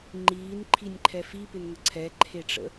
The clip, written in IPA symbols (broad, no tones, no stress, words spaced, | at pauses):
ŋ͡ǃiːnǃʰinʲǃʰɛ fipɪnŋə ǀʰɛǃʰeʈ͡ʂə̰